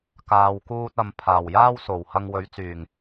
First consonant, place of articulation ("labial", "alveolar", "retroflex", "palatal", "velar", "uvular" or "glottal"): velar